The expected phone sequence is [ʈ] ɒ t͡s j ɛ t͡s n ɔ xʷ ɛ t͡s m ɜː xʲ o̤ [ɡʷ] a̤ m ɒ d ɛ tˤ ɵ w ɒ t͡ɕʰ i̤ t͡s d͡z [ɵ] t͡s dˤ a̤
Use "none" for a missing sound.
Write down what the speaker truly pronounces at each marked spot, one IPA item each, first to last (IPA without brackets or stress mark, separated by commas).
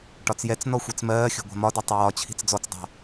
ʈ, ɡʷ, ɔ